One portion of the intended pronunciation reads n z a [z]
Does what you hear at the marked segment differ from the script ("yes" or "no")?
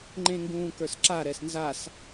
yes